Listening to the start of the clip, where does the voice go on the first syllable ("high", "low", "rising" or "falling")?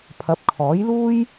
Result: rising